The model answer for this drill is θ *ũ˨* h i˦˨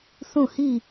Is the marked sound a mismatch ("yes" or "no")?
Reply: yes